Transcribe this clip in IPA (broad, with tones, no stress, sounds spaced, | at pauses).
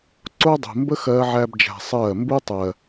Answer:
ǀ o˦ dˤ ṳ˨ m b ə˦ x ɜː˦ ʕ æː˦ b d͡ʒ æ̤˧ sˤ ɜː˦˨ m b u˦ tˤ ɜ˨